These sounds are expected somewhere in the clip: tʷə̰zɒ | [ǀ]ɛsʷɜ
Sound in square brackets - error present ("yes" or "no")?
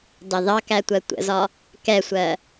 yes